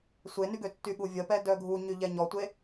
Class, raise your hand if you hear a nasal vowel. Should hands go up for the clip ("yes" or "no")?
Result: no